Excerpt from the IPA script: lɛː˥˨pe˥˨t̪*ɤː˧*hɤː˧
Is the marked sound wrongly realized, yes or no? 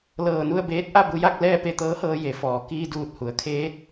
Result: yes